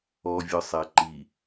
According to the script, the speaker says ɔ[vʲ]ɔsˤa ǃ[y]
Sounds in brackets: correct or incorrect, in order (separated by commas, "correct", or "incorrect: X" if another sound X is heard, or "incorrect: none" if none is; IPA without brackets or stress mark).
correct, incorrect: i